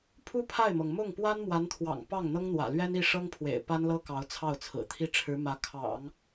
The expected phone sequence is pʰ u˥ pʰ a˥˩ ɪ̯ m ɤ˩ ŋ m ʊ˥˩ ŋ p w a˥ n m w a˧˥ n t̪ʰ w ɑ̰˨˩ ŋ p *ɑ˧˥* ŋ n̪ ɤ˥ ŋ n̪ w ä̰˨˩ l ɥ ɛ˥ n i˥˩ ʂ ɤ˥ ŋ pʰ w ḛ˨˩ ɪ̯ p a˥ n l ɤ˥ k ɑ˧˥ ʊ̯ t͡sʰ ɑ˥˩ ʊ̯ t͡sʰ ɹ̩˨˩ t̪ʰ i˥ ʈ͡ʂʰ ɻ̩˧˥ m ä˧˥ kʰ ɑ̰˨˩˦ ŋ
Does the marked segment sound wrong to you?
yes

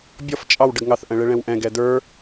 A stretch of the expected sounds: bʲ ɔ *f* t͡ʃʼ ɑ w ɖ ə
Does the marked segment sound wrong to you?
no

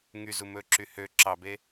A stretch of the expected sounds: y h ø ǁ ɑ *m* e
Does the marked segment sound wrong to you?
yes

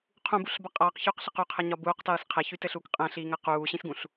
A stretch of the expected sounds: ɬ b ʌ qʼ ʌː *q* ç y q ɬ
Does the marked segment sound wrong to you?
no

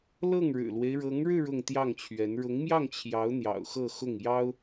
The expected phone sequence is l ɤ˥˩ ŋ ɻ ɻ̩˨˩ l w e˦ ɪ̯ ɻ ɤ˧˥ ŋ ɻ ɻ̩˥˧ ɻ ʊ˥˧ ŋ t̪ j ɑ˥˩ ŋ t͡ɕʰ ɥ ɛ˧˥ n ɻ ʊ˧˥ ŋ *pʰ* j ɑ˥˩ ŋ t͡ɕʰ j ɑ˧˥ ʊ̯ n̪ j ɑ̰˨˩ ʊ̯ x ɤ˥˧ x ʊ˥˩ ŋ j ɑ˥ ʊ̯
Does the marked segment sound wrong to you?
yes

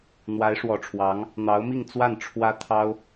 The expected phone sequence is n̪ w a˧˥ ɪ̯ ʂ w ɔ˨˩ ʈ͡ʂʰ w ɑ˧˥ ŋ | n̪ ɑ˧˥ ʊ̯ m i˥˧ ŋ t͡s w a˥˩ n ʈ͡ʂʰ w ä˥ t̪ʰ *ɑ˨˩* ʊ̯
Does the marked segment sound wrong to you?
yes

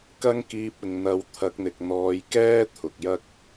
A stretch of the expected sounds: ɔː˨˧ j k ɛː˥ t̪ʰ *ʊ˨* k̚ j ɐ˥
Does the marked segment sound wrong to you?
no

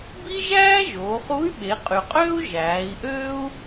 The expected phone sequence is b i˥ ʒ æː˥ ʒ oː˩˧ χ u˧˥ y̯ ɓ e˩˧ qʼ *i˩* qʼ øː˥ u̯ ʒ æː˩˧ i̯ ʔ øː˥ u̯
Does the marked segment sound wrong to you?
yes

